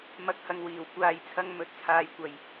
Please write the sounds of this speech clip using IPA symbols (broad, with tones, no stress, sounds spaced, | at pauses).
m ɐ˨˥ k̚ h ɐ˨ ŋ w iː˨˩ w kʷ aː˧ j t͡sʰ ɐ˥ ŋ m ɵ˧ t̚ t͡sʰ aː˨˧ j kʷ ɐ˨ j